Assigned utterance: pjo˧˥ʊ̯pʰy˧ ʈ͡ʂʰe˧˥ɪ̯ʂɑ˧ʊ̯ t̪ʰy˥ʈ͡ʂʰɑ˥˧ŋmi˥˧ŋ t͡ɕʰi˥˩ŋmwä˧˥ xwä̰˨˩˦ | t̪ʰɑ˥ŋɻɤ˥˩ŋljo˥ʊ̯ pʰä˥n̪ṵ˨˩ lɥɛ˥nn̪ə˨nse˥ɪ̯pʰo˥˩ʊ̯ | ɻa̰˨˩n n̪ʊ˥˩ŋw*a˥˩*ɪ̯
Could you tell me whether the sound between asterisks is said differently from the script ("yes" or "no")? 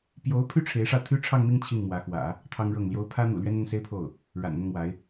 yes